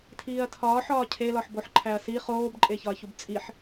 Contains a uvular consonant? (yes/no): yes